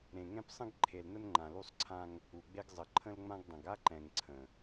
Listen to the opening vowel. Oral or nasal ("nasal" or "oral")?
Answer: nasal